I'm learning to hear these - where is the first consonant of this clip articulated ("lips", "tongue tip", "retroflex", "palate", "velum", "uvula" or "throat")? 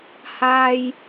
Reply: throat